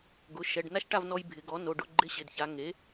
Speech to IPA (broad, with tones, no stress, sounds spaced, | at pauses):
ɡ ʊ˩˧˩ ʃ ɛ˩˧˩ ɖ n a˥˨ ʃ ʈ a˥˨ v n ɔ˧ j bʱ ɪ˩˧ ɡ ɔ˩˥ n o˩˧˩ ɖ ʊ˧˥˧ ɡ͡ǃ ɪ˧˥˧ ɕ ɪ˩˧˩ d ç a˩˧ ŋ e˩˥